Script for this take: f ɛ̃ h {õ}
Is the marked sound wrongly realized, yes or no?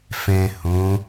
no